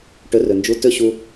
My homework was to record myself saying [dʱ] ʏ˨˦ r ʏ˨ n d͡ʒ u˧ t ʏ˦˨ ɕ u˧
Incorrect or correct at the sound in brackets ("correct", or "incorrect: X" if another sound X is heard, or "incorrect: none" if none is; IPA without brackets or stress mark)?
incorrect: ʈ